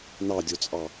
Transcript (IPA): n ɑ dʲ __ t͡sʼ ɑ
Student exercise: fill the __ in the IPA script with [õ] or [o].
o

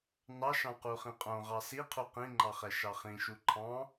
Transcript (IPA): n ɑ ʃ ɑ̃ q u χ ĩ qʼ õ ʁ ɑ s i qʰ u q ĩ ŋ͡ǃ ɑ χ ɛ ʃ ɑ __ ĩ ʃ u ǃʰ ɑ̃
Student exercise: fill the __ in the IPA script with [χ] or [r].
χ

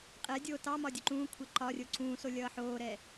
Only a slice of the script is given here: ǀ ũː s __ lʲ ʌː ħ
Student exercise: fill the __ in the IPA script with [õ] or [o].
o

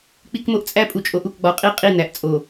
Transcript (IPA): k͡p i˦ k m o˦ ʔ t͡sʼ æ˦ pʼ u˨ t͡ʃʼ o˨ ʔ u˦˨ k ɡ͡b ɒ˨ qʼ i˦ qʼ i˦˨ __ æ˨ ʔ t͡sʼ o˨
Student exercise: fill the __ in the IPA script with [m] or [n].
n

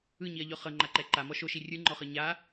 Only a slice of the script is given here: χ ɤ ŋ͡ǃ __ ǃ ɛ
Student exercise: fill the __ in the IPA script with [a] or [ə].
a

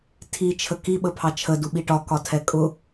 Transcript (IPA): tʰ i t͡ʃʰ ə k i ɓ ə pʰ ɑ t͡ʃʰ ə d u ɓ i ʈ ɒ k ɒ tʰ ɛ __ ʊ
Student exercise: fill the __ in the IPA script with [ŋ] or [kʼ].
kʼ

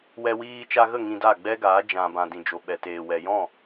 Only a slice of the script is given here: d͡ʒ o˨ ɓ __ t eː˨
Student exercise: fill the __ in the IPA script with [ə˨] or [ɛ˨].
ɛ˨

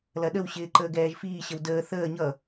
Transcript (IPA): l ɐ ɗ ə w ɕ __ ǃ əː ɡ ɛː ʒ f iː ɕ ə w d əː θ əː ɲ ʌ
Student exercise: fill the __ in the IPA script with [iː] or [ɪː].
ɪː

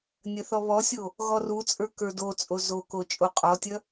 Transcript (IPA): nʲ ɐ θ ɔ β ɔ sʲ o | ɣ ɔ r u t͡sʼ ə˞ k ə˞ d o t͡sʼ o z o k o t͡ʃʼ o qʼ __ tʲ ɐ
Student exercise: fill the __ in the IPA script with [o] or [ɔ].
ɔ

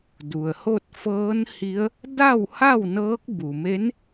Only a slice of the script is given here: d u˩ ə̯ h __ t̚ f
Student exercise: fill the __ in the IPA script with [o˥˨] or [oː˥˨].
o˥˨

